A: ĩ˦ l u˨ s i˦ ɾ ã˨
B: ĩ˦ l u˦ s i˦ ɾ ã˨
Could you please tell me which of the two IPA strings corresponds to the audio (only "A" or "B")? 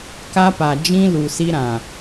A